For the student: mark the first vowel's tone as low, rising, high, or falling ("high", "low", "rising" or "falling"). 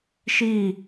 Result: falling